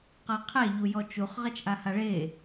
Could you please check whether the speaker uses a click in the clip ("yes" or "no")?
no